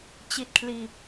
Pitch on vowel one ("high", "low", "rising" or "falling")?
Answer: low